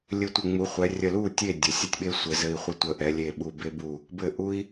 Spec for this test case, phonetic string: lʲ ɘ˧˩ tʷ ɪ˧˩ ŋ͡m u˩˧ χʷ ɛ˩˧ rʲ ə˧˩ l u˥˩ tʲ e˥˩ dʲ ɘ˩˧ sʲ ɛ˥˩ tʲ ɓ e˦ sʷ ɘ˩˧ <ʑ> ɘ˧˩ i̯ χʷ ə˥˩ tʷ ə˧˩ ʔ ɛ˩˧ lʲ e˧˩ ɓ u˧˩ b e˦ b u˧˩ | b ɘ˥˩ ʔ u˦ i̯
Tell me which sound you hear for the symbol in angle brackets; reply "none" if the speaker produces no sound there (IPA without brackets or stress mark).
z